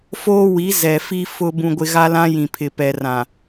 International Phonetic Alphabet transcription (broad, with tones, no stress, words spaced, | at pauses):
foː˦wi˨˦ zɛ˨fi˦ fʊ˦ bũ˦ɡʷɪ˦ ɣa˦lã˦ jĩ˨pʰɪ˨ pɛ˨rã˨